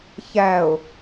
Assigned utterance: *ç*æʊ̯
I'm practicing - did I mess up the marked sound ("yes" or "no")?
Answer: no